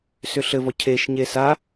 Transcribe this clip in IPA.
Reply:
sʏɬɘ vɔcʰeʃ ɲesa

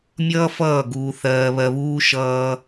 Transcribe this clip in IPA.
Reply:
mʲʌː˦fʌː˦˨ ɡuː˧θɜː˧βɜ˧βuː˦ ʃʌː˦

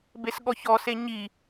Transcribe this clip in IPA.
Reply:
besɠɔçɔse ɲi

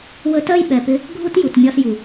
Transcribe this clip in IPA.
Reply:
wə˧tɜ˦jɓɛ˨pɪ˧ | ɡʱu˦tju˨tmʲɒ˧sju˨

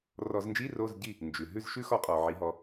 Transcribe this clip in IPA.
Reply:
rɔ˧˩˧znd͡ʒi˧˥˧ ro˧˥˧zɟi˥˨ | nd͡ʒʉ˩ ɦʉ˥˨zʃʉ˦˥xɔ˨˦ qʼɔ˩ʕi˨˦ɦɔ˨˦

